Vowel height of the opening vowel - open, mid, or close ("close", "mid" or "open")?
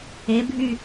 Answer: mid